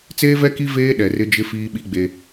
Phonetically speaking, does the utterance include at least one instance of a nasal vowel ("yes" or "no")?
no